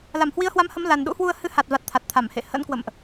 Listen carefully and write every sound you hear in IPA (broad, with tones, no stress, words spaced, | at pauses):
la˧˩mhwi˨˦ə̯hwa˨˦mhə˨˦m la˨˩nɗṵ˧˥hwu˧ə̯ hɨ˨˦ha˨˩t̚va˨˩t̚ t̪ʰa˨˩t̚t̪ʰa˧˩m hḛ˧˨ hə̰˧˥nkwə̰˧˨mʔ